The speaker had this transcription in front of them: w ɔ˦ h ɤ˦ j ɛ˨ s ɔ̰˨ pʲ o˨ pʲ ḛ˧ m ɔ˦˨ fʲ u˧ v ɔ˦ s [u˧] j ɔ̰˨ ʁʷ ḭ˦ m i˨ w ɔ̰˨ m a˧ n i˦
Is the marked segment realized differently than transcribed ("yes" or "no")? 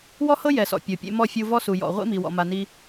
yes